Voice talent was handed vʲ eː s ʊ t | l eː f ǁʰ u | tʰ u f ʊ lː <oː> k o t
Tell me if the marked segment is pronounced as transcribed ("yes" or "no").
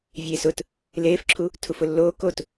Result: yes